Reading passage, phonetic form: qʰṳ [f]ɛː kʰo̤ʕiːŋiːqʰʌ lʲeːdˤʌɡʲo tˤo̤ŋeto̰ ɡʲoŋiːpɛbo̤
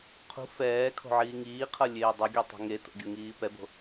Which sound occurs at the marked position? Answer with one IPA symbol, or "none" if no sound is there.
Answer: f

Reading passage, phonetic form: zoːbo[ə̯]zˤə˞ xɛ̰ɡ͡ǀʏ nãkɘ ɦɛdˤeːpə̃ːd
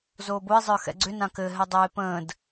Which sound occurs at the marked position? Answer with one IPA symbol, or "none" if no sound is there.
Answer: ɪ̯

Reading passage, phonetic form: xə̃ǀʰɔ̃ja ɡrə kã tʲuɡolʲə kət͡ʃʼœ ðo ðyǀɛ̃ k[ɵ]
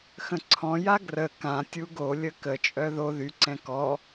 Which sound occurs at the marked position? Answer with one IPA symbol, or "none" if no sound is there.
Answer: ɔ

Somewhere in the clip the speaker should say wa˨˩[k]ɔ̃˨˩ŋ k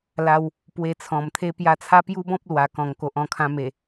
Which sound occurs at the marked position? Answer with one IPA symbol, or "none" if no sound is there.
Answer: k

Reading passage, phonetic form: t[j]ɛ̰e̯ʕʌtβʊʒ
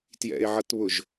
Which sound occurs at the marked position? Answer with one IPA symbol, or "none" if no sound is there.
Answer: j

